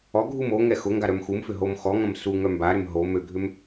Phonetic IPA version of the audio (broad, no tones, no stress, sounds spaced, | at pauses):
ɔ ɡʱ u m o ŋ ɛ x ʊ ŋ ɡ a ɾ œ m x u m f ʏ ɦ o m x ɔ ŋ ɐ̃ m s u ŋ œ m b a ɾ ʏ m ɦ o m ø ɡʱ ʏ m